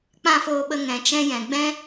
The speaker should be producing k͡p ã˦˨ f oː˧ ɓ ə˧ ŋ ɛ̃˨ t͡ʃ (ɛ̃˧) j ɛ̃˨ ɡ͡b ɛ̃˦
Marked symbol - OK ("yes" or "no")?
yes